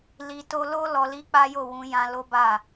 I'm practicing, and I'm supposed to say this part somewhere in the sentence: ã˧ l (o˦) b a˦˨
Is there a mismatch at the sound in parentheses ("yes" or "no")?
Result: no